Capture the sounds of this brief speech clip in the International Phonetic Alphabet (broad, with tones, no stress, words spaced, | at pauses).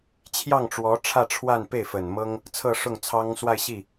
t͡ɕʰjɑ˥˩ŋʈ͡ʂwɔ˧˥ʈ͡ʂʰä˥˧ʈ͡ʂʰwa˥˧n pe˥˩ɪ̯fə˨˩n mɤ˥ŋ | t͡sʰɤ˥˧ʂʊ˥˩ŋt͡sʰɑ˥ŋ swa˥˧ɪ̯ɕi˥˩